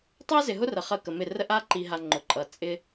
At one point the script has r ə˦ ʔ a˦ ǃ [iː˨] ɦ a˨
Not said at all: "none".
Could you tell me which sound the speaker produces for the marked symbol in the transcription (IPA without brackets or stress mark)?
i˨